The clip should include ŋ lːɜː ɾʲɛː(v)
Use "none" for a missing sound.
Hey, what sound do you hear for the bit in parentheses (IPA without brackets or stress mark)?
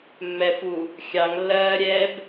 b